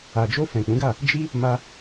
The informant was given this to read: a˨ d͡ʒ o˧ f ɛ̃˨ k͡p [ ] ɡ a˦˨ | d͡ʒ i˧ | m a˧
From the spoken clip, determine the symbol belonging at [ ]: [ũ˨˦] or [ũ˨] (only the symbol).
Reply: ũ˨˦